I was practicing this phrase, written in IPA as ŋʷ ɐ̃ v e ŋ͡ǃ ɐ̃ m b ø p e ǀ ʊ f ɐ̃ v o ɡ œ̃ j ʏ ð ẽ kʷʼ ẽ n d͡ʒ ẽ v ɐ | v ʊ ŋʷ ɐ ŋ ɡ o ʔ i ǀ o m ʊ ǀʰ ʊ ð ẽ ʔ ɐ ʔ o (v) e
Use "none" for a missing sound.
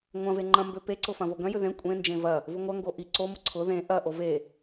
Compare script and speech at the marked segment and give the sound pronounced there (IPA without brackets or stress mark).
v